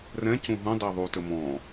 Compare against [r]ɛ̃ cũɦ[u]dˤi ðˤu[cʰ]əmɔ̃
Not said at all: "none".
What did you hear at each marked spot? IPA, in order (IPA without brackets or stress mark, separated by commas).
r, ũ, t